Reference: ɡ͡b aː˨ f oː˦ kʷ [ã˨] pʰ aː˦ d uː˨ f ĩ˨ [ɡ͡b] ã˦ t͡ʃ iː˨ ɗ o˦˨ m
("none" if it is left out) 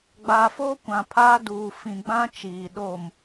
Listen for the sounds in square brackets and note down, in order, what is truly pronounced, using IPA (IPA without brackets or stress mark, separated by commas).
ã˨, ɡ͡b